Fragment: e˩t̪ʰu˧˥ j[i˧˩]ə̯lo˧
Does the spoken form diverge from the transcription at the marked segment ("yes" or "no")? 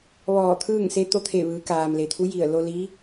no